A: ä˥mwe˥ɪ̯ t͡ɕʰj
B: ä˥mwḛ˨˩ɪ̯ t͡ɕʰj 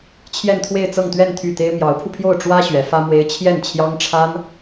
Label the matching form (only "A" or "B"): A